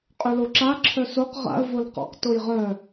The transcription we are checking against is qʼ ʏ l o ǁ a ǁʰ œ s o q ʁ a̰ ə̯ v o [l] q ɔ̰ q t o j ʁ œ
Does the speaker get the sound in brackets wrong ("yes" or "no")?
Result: no